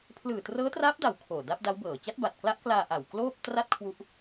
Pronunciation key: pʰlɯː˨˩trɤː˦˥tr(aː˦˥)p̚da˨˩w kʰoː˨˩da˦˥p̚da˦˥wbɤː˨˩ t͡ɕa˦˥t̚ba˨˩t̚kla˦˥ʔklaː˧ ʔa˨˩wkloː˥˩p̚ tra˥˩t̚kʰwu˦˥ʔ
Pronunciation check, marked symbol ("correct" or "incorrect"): correct